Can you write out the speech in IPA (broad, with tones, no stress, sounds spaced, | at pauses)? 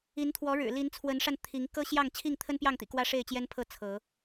i˨˦ n t̪ʰ w ɔ˨˦ ɻ ɻ̩˨˩ l i˨˦ n t͡sʰ w ə˨˦ n ʂ a˧ n t̪ʰ i˨˦ ŋ k ɤ˦ ɕ j ɑ˥˨ ŋ t͡ɕʰ i˥˨ ŋ t̪ʰ ə˦ n p j ɑ˥˨ ŋ t̪ ḭ˨˩ k w ä˦ ʂ e˥˨ ɪ̯ t͡ɕ j ɛ˦ n pʰ ɤ˥˨ t͡sʰ ɤ˨˦